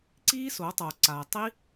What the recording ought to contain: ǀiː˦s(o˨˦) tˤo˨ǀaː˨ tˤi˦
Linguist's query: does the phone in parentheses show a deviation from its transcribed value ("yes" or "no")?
no